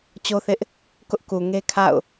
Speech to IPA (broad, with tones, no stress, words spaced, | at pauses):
t͡ɕo˦θɪ˦ʔ | kʊ˦ʔku˨ŋe˦kʰa̰˦˨ʊ̯